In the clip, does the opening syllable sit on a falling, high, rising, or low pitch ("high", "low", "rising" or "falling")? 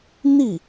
falling